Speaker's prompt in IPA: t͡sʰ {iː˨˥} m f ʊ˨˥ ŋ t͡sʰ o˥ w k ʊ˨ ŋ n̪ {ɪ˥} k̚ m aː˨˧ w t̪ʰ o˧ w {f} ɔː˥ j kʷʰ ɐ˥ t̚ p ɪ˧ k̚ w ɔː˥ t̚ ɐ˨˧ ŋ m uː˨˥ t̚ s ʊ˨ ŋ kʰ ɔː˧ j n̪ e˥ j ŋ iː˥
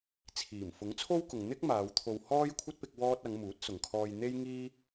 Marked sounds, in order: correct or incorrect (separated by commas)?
incorrect, correct, incorrect